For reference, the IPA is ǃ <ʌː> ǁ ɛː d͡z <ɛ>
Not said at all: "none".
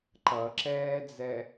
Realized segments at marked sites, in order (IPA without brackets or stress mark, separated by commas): ʌ, ɛ